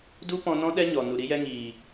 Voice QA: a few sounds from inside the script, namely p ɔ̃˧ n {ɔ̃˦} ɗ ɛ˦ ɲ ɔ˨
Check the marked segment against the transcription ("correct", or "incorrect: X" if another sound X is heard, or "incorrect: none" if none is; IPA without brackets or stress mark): correct